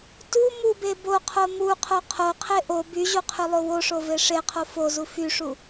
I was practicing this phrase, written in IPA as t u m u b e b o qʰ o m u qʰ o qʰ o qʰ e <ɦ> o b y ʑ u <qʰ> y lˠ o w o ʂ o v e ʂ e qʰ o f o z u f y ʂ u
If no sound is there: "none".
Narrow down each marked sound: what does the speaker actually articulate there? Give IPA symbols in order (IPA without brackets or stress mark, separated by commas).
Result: ʔ, qʰ